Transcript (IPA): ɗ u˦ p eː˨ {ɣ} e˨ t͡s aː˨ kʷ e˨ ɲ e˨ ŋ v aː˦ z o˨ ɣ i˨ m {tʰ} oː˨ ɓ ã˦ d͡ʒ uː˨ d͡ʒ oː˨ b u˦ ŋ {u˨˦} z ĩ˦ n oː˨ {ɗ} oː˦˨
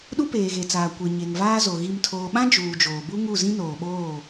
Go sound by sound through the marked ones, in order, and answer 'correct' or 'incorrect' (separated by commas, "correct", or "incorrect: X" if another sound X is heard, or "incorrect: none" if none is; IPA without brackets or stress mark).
correct, correct, incorrect: u˦˨, incorrect: ɓ